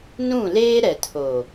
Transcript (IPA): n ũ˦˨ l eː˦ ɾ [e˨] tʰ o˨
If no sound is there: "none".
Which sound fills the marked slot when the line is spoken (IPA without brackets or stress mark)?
ɛ˨